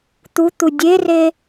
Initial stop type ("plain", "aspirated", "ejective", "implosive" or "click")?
plain